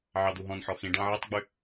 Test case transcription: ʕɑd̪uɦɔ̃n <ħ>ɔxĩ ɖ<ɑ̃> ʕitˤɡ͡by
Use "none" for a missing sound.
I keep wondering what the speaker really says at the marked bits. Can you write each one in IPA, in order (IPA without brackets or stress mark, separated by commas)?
ħ, ɑ̃